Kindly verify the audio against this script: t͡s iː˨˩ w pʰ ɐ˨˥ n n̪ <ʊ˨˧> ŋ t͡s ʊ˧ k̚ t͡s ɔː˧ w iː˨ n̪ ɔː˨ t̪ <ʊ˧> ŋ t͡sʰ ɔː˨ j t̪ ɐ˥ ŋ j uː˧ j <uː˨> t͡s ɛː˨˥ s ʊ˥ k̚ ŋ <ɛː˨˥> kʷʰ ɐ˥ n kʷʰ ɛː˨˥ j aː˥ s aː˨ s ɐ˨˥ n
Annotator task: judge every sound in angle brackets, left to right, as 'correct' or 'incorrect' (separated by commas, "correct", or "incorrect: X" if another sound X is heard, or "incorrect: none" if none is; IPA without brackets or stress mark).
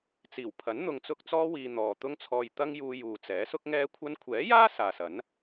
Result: incorrect: ʊ˨, correct, correct, incorrect: ɛː˥